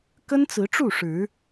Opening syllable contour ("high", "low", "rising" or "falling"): high